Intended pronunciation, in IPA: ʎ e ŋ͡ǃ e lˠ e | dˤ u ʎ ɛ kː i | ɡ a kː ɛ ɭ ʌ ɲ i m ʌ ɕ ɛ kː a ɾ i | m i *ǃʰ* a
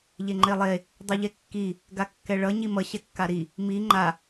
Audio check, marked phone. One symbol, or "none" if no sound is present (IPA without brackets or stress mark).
ŋ͡ǃ